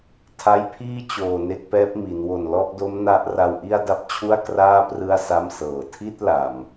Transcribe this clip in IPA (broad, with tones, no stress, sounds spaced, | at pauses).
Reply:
tʰ a˦˥ j pʰ iː˥˩ t͡ɕ oː˨˩ n e˥˩ k̚ p ɛː˦˥ p̚ m i˩˦ n w o˨˩ n l ɔ˥˩ ʔ d o˦˥ m n a˦˥ ʔ r a˧ w ʔ i˥˩ a̯ d a˦˥ p̚ t͡ɕʰ u˥˩ a̯ k r aː˥˩ p r ɯ˥˩ a̯ s a˥˩ m s ɤː˨˩ tʰ i˥˩ t̚ l a˨˩ m